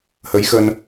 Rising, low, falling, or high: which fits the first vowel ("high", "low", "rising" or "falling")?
rising